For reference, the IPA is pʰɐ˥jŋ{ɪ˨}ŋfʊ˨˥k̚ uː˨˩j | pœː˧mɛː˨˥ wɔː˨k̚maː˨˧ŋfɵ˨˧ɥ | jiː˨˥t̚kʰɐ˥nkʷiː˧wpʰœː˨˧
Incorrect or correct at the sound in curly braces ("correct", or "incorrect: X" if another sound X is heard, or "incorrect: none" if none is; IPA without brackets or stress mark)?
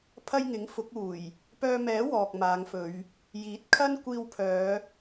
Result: incorrect: ɪ˨˥